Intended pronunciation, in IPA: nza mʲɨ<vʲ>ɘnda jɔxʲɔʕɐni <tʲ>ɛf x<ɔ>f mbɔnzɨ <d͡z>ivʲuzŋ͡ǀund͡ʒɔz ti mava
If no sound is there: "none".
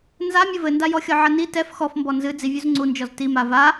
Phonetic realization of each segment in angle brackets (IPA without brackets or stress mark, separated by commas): v, t, ɔ, d͡z